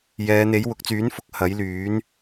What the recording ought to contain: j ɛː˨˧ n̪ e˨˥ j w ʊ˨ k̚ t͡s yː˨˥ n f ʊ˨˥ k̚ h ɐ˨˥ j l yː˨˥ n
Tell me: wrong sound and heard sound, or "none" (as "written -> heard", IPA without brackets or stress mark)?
none